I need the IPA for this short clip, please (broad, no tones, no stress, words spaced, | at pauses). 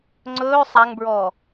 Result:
ŋ͡ǀɵː sˤaŋbɹɔː